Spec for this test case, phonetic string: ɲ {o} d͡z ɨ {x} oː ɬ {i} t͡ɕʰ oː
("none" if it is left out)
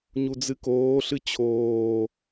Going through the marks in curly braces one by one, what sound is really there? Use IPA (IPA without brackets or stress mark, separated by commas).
u, k, ɨ